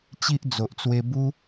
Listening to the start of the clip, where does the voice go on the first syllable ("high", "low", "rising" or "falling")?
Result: high